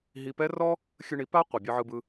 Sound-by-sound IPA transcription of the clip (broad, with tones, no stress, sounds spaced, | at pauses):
ɦ i˧ p ɛ˦ r ɔ˦ | xʲ ɨ˧ ɳ i˨˦ p a˦ qʷ ɯ˨ bʲ ɯ˧ ʕ ɯ˧ b ɯ˧